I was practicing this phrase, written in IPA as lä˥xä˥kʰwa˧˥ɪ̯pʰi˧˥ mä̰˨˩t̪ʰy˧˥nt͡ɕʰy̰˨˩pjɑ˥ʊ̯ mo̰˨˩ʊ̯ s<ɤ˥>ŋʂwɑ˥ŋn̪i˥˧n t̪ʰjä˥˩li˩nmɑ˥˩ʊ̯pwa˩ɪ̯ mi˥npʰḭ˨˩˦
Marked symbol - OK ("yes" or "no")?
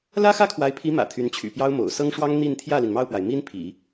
yes